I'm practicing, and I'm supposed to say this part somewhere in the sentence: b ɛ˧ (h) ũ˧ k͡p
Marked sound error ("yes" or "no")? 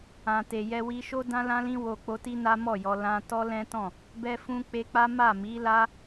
yes